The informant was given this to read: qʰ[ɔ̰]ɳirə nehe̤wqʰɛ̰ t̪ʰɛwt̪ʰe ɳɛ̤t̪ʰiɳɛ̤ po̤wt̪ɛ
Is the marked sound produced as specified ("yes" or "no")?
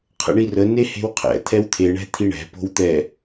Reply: no